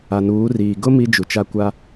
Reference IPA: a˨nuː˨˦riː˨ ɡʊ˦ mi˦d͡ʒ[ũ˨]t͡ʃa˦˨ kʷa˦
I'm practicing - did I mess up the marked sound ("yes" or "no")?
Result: yes